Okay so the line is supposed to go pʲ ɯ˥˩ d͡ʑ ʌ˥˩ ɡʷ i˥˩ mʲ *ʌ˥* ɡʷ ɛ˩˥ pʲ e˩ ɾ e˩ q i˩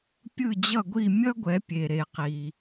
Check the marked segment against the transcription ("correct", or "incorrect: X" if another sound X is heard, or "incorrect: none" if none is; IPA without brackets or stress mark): correct